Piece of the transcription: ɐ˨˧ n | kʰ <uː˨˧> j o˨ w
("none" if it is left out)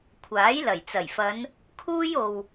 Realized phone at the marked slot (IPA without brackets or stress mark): uː˥